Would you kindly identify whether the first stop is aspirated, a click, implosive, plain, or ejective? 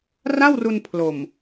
aspirated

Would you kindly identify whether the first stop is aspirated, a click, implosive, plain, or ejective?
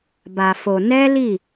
plain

